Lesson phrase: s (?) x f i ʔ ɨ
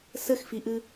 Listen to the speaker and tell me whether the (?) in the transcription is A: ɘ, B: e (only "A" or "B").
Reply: A